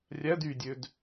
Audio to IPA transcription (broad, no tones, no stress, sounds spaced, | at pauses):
rʲ æ d y dʲ ø d